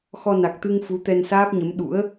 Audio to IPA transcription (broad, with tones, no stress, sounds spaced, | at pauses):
x ɔ˧ n a˨˩ k̚ t̪ ɨ˧ ŋ f u˨˦ t̪ ɛ˧ n s aː˦˥ p̚ ɲ ə˨˦ m ɗ ṵ˧˥ ə̯